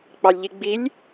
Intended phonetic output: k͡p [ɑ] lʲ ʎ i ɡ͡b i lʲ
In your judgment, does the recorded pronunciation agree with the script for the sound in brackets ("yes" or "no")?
yes